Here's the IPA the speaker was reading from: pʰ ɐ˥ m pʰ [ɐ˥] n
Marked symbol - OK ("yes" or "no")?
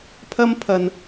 no